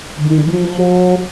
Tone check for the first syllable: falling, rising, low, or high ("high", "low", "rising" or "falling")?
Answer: low